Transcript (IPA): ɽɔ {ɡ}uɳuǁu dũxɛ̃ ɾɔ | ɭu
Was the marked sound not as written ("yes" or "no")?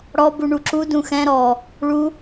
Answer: yes